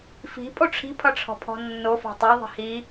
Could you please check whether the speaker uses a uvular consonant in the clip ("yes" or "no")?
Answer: no